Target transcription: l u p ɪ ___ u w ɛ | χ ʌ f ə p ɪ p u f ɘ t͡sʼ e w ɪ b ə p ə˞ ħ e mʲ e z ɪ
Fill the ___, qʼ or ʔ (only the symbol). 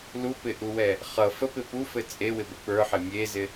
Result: ʔ